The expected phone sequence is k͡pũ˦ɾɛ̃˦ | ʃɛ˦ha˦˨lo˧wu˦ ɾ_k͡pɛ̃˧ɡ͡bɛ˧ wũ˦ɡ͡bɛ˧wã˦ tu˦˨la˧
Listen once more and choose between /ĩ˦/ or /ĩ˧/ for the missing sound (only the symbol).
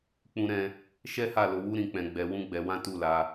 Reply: ĩ˧